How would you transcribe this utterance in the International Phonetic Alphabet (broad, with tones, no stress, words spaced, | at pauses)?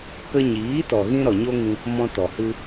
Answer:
kə˧ɲiː˨˦tɔ˨ɣĩ˧ ɾɔ˨ɲo˦ŋĩ˧ | mɔ̃˧tɔ˨hɨ˧